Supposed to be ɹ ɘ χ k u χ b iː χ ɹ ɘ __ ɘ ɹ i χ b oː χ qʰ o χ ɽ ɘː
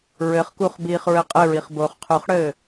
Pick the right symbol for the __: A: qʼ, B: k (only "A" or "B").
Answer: A